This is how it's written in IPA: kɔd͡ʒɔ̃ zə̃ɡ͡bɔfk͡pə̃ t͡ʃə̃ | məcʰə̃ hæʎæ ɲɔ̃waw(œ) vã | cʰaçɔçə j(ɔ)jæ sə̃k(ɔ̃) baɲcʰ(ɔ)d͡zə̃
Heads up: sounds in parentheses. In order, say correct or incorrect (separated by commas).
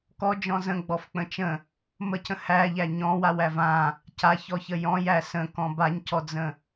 incorrect, incorrect, correct, correct